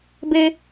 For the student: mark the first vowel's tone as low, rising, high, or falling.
low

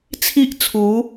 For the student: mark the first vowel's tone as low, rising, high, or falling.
high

